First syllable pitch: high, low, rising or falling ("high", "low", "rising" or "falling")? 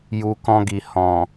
low